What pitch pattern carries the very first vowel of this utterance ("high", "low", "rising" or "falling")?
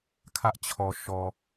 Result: high